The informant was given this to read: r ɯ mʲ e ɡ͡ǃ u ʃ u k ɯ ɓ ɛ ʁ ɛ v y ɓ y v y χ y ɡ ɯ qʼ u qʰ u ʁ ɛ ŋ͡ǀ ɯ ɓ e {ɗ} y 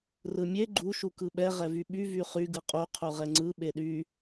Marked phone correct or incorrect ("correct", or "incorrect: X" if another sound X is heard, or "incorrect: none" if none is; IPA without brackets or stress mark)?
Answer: correct